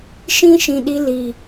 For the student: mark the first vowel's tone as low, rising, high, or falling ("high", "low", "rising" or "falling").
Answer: high